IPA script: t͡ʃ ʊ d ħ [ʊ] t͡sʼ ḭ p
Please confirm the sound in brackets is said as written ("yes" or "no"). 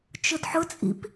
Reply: yes